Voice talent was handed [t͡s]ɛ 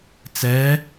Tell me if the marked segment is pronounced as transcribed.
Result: yes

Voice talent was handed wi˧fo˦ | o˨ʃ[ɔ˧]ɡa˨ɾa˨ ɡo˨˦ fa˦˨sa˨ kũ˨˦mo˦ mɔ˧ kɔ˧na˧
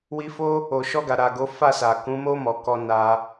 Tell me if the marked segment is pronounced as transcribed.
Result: yes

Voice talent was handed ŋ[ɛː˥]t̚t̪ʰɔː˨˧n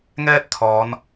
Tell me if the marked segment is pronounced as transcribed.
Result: yes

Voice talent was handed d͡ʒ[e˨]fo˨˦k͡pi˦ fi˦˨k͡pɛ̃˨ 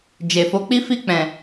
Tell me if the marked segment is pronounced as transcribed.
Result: yes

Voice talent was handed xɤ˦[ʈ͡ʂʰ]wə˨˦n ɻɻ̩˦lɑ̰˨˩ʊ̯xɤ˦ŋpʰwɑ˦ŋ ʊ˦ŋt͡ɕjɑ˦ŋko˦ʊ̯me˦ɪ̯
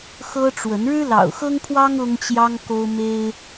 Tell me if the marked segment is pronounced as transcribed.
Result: no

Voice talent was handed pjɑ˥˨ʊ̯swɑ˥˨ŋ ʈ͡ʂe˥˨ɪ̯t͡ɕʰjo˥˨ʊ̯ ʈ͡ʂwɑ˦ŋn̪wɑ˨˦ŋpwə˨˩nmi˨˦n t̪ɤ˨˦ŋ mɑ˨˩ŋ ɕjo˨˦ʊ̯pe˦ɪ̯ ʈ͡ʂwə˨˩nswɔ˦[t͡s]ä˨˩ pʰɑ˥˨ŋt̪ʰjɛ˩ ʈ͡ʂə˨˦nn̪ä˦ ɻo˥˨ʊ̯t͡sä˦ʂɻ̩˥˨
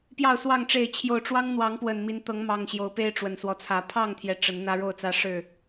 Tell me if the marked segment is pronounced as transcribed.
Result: no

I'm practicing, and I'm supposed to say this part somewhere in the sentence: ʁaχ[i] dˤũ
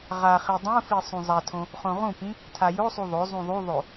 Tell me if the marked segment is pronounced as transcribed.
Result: yes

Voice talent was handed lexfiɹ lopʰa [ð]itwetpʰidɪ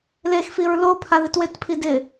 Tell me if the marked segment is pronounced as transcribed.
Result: yes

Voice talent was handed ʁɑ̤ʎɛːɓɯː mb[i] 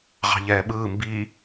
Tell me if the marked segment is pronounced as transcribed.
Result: yes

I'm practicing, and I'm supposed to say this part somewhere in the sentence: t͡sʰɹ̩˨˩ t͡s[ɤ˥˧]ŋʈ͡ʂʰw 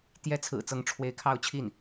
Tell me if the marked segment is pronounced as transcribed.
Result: no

